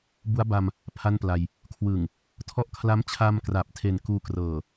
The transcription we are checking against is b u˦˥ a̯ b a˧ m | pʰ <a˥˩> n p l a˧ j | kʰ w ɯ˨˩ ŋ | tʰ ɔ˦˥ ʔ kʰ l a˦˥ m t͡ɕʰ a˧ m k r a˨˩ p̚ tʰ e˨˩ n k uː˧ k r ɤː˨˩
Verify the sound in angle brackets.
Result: correct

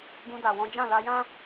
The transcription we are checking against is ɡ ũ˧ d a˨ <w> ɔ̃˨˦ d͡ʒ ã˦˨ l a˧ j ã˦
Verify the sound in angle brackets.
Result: correct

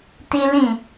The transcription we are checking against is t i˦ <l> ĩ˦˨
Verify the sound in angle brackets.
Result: correct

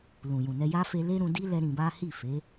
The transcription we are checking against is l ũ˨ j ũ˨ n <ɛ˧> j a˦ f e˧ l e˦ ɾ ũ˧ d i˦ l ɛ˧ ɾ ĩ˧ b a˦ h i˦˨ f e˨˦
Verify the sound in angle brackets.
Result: correct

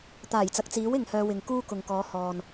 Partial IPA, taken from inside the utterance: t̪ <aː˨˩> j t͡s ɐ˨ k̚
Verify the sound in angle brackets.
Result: correct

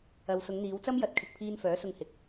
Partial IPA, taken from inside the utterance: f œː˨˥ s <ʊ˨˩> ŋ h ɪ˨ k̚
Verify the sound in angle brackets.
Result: incorrect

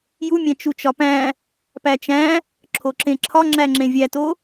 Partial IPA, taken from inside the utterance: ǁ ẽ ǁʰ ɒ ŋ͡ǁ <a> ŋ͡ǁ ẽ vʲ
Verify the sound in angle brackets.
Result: incorrect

